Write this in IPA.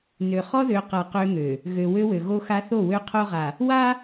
n ø˨ χ ɔ˦ ð ø˨ q a˨ q ø˦ ŋ ø˨ | ɣ ø˨ w ø˦ w ø˨ ɣ o˦ x a˦ θ o˦˨ w ø˦ qʰ o˦ ʁ a˨ | w a˦

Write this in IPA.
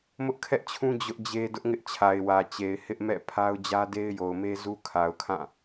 m ʊ˦ ʔ kʰ ɛ˦ ʔ t͡ɕʰ ũ˦ d͡ʑ ʊ˦ ʔ d͡ʑ e˦ d ʊ˦ ʔ ŋ ɪ˦ ʔ t͡ɕʰ a˨ ɪ̯ w ä˨ t͡ɕ e˨ ɪ̯ h ɪ˦ ʔ m ɛ̰˦˨ pʰ a˦ ʊ̯ d͡ʑ ä˦ d e˦ ɪ̯ j o˨ ʊ̯ m e˦ z u˦ kʰ a˨ ʊ̯ kʰ ã˦˨

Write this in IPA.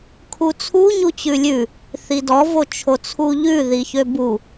kʰ u t͡sʰ u ɲ u t͡ɕ ʉ lʲ ʉ | θ i d ɔ v o t͡ʃʰ o t͡sʰ u ʎ ʉ ð i ç ø b u

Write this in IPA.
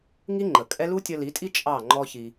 ŋ i˦ ŋ͡ǃ ə˨ kʼ ɛ˦ l u˦ tʲ ʌ˧ l i˨˦ tʼ i˦ t͡ʃʼ ɑ˦˨ ŋ͡ǃ ɔ˦ ç i˧

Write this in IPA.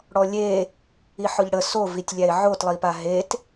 ɽ ɔ lʲ e | i ħ ʊ ʎ ɽ ə s o v i tʲ lʲ æ ɪ̯ ʕ o t lˠ i p a ɦ e t

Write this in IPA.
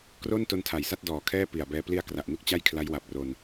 k r o˥˩ n t o˧ n tʰ a˨˩ j s a˥˩ t̚ d ɔː˨˩ kʰ ɛː˥˩ p i˨˩ a̯ b ɛː˧ p l i˧ a̯ k r a˨˩ ʔ n u˥˩ k̚ t͡ɕ a˥˩ j kʰ l a˦˥ j w a˨˩ p̚ r o˧ n

